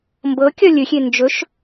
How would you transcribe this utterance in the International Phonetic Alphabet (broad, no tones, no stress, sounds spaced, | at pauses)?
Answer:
m b ɤ kʲ ɒ lʲ ɵ xʲ e n d͡ʒ ɵ ʃ